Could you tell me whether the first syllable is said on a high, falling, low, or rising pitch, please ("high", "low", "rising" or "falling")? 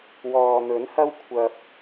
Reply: low